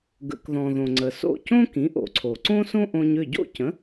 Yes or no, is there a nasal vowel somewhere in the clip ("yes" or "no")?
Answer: yes